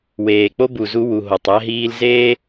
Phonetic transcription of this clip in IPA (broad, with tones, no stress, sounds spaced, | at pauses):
w eː˩ k͡p o˥ b u˩ z u˧ w u˩ ɦ o˩ tˤ æ˧ ɦ iː˧ l z eː˥